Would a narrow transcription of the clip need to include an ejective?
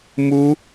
no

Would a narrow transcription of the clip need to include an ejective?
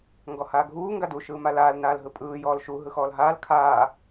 yes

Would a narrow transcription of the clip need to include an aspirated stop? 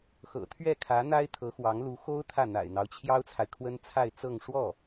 yes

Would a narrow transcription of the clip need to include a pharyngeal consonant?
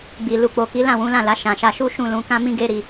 no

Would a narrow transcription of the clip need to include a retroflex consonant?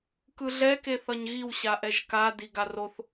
no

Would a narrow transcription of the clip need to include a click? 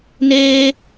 no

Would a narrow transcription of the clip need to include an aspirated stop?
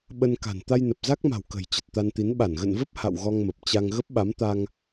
no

